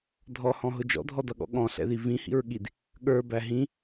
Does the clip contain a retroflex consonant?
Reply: no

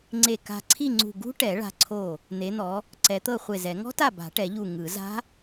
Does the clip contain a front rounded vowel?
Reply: no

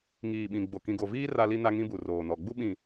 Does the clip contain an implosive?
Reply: yes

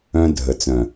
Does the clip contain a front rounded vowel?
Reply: yes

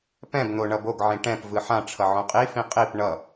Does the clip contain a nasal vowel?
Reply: yes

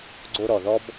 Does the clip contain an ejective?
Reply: no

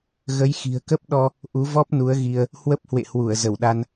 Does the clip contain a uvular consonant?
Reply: no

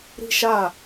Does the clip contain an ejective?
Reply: no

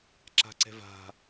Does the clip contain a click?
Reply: yes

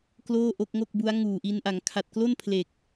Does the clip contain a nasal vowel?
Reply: no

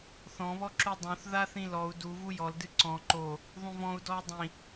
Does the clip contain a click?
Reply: yes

